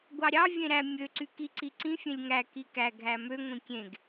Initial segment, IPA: ɡʷ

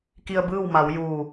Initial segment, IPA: k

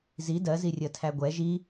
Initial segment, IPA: z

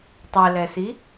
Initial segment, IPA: tˤ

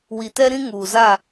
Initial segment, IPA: w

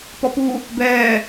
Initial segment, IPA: p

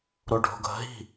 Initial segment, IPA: ɾ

